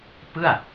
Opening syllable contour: falling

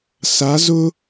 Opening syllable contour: rising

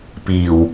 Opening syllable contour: low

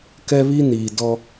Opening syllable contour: high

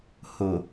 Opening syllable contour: low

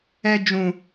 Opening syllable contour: high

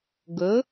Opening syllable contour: rising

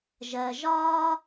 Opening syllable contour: low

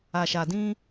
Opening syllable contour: low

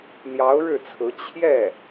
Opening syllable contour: rising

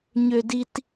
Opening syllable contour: high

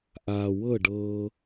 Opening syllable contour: low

